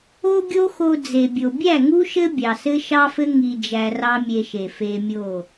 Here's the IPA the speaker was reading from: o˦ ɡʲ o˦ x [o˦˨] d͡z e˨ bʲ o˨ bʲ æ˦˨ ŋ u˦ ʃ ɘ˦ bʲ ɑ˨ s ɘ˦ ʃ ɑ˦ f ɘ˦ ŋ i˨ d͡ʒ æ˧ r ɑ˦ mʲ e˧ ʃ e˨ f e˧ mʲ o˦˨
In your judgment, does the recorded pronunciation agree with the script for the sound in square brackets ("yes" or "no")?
no